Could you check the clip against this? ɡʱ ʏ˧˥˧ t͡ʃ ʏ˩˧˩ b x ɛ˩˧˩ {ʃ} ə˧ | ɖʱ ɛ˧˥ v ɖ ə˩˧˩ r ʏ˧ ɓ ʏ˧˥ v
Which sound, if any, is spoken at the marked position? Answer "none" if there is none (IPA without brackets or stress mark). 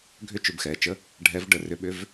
t͡ʃ